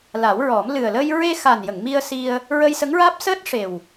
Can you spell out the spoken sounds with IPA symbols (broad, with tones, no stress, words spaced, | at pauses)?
la˨˩˦wɹɔ˨˩˦m lɨ˨˩ə̯ləː˧j ɹe˧xa˨˩njə˨˩˨ŋ mi˧ə̯si˧ə̯ | ɹə˧jsə˧˥ŋɹaː˦˥p̚ səː˦˥t̚ʂe˨˩w